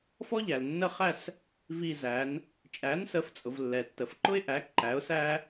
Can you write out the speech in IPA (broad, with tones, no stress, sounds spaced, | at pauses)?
f ɔ˥ ʎ æ˨ l nː ə˥˧ χ æ˥˧ s | v i˥˧ z æ˨˥ n | t͡ʃʼ æ˨˥ n s ə˨˥ f t͡sʼ ʊ˨ v lː ɛ˨ tː ə˨ f ǃ ʊ˥ ɪ̯ ʔ æ˨˥ ǃ æ˨˥ ʊ̯ s æ˥